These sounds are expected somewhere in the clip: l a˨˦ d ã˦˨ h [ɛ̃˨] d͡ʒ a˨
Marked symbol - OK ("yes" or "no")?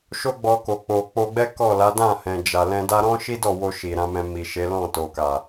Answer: yes